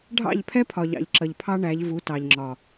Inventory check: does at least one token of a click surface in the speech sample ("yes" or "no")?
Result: yes